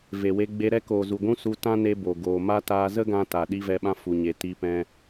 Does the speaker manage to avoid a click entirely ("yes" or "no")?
yes